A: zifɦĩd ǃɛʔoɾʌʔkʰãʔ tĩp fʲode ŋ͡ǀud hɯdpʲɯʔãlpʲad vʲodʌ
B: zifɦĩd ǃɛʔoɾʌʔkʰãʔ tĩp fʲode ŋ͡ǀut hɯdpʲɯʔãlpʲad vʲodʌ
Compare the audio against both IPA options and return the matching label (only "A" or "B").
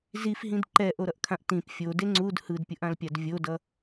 A